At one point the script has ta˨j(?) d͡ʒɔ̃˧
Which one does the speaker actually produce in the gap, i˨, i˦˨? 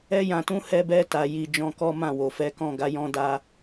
i˨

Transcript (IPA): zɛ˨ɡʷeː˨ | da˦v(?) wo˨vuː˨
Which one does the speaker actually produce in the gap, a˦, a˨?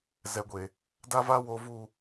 a˦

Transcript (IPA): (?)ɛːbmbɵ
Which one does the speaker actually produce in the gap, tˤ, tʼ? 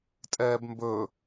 tʼ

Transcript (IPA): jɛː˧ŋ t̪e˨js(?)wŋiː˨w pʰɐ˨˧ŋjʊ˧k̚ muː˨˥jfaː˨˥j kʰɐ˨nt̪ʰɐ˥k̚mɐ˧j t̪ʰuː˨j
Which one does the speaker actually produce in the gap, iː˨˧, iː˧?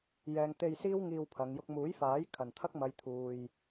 iː˧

